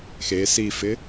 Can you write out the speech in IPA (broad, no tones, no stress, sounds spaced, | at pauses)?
x e s i f ɪ